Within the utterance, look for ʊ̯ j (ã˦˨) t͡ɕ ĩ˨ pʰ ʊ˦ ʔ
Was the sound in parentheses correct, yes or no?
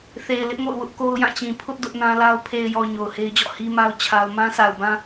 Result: yes